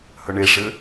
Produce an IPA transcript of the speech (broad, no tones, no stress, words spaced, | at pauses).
hœɳeʂɘ